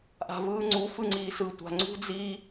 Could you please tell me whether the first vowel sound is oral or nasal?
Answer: oral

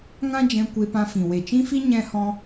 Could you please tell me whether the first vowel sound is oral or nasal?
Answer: nasal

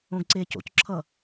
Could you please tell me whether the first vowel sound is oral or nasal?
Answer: nasal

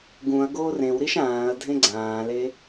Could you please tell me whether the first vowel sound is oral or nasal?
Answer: nasal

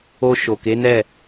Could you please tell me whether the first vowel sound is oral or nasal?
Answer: oral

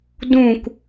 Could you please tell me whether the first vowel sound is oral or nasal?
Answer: nasal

